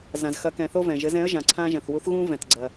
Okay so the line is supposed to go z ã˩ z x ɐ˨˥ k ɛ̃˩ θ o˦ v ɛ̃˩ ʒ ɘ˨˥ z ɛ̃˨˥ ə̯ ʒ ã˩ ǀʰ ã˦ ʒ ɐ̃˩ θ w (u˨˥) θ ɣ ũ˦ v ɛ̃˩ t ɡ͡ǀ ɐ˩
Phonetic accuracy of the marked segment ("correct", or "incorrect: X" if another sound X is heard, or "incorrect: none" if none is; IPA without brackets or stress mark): correct